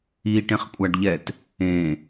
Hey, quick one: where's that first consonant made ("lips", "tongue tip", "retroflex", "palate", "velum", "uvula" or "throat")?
retroflex